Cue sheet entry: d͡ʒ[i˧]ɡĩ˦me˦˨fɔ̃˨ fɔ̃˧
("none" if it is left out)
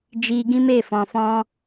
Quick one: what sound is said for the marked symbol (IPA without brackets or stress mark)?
i˧